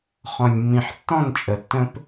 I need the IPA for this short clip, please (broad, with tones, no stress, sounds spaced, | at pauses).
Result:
χ ɔ̃˨ lʲ mː ĩ˨ ħ tː ɔ̃˦˨ n t͡ʃʼ ə˨ tː ə̃˦ p